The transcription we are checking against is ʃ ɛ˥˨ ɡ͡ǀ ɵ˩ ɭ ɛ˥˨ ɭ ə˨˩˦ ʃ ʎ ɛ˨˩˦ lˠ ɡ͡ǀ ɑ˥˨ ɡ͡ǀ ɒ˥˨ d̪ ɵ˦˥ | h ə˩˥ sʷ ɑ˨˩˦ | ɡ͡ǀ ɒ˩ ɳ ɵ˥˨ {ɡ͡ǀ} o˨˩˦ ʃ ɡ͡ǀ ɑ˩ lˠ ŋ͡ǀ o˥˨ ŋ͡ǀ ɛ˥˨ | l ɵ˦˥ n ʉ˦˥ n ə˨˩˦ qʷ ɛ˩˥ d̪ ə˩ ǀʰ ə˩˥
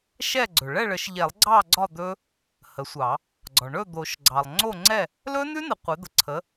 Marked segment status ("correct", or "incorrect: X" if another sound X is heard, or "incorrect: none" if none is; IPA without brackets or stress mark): incorrect: d̪